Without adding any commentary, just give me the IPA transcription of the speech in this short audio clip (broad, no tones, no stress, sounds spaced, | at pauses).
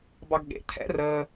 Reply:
b ɑ ɡ ɠ ḛ t̪ʰ ɛ̰ r əː